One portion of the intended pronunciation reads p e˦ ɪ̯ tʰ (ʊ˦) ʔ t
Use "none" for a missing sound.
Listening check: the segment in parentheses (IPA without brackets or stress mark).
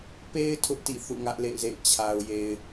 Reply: ʊ˦